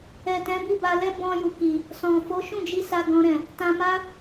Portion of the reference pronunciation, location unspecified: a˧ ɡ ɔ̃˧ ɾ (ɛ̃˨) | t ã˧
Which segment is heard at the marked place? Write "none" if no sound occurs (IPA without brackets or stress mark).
ɛ̃˨